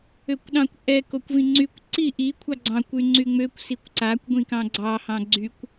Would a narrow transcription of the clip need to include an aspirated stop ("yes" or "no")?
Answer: yes